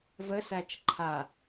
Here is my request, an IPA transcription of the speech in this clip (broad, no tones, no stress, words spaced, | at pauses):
vəsæt͡ʃ ǃʰa